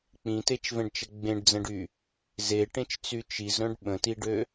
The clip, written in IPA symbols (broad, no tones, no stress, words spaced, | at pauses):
k͡pĩtet͡ʃvɛ̃ɖt͡ʃə ɡ͡bẽɖd͡zə̃ɖy | zeʈẽt͡ʃt͡sy t͡ʃizɾœ̃ɖ ɓə̃tiɖø